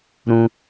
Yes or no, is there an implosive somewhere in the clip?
no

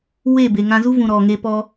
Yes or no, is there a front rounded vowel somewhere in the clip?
no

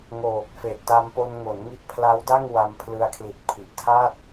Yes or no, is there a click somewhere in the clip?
no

